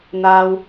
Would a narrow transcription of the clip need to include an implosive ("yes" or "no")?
no